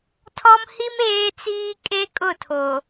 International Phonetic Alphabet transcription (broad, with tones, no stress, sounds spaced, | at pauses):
tʰ ɔ˦ m h i˦ m eː˦ t͡s iː˦ kʼ e˦ kʼ ʊ˦˨ tʰ o˨